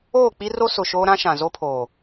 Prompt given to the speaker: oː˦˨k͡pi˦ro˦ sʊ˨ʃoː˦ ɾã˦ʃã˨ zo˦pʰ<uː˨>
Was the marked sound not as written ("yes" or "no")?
yes